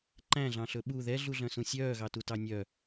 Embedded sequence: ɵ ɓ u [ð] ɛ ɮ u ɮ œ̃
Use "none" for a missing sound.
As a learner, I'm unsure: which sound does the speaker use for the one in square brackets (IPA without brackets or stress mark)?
ð